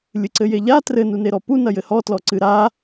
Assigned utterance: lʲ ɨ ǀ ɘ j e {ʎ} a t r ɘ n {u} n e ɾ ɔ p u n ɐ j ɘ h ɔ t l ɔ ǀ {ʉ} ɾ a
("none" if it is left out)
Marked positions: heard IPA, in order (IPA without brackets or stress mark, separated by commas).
ʎ, u, ɨ